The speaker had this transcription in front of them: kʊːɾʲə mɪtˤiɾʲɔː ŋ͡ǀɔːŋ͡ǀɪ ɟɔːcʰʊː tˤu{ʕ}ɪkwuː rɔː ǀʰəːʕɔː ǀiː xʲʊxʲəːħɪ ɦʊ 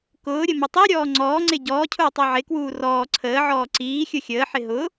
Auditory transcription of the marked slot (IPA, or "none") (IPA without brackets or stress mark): ʕ